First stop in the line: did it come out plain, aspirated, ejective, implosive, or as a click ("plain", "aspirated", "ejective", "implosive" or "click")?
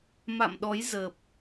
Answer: implosive